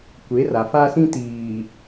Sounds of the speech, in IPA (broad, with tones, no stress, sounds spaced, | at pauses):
kʷ e˨˦ r a˨ f a˦ s ĩ˦ t iː˨